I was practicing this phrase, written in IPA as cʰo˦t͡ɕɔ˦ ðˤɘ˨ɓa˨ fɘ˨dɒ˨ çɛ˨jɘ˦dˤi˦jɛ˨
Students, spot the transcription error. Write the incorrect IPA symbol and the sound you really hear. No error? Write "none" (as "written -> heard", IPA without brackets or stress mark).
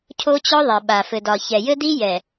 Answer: dˤ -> d